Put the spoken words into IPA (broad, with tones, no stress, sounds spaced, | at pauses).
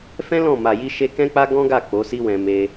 f ɛ̃˦ l ɔ̃˦˨ m a˨ j i˧ ʃ e˧ k ɛ̃˦ k͡p a˦ ɡ ɔ̃˦ ɡ a˦˨ k͡p o˨˦ s i˦ w ɛ̃˧ m e˧